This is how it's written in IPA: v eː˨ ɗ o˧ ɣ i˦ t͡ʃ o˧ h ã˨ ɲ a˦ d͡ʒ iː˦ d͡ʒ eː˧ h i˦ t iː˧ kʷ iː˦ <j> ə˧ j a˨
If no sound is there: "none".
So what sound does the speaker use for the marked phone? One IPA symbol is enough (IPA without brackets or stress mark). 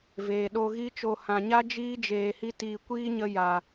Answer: ɲ